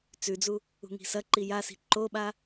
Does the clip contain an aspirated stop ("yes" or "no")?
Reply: no